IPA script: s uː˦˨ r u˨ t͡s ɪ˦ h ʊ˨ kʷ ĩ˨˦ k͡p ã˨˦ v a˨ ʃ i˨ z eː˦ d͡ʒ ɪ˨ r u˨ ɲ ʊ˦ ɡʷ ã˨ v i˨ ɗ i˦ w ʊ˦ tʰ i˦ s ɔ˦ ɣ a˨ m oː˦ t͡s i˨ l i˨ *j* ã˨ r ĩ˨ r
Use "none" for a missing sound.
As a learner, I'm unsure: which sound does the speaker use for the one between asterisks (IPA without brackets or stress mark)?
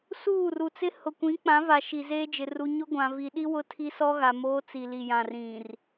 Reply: j